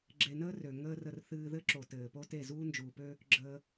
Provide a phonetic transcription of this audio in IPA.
ɡ͡ǁe˧nəː˦ rø˨ ŋəː˦rə˧r θɨː˧ðɘ˦ǁo˨ tɘː˨ po˦te˦˨ zuː˦nd͡ʒuː˨pø˦ | ɡ͡ǁəː˧

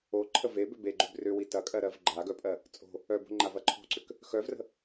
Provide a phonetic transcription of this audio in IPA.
o ǃʰəve bʏbeɡ͡ǃʏb rʏwi tɐkʼɜɾɜv ɡ͡ǃaɡœpʼɜ | t͡sʼo̤ | œbo̤ ŋ͡ǃavɐǃʰo̤ǀʏk | xœvrə̤

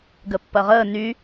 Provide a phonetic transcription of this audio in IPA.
ɡəpːɐʁəː ny

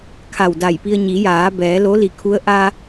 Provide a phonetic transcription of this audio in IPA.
kʰa˧˩wda˧˩jpi˧ə̯ ɲi˩˧jaː˩˧bɛː˩˧ lo˧˥li˧˩kʰu˧˥ə̯ ʔa˧

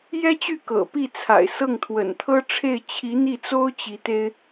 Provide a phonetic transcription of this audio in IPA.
jɛ˥t͡ɕy˥˩ kɤ̰˨˩pi˥˩t͡sʰa̰˨˩ɪ̯ sɤ˥˩ŋt̪ʰwə̰˨˩nt̪ʰɤ˥ʈ͡ʂʰe˥˩ɪ̯ t͡ɕʰi˧˥n̪i˥˩t͡so˥ʊ̯ t͡ɕi˧˥t̪e˥ɪ̯

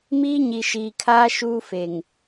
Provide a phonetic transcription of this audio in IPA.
miː˦ɲi˨ʃiː˨kʰaː˦ ʃuː˦fe˨ŋ

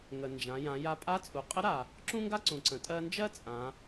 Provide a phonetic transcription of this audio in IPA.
ŋə˩nd͡ʒã˩˧jã˩˧ja˧˥ pʼa˧˥t͡sʼu˩˧qʼə˧˥ɾa˩ | ǁũ˥ŋɡa˥ ǀũ˩ǀə̃˩˧ tʼɜ˧nd͡ʒɜ˥ t͡sʼã˩˧

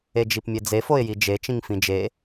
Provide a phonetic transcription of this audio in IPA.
ed͡ʒipmʲed͡ze foɪ̯jid͡ʒe t͡ʃĩŋfĩd͡ʒe

